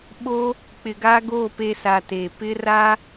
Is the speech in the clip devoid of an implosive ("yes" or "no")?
no